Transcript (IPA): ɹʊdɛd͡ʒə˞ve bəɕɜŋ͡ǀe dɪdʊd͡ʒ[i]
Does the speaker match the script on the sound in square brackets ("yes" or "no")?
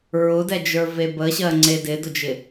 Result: no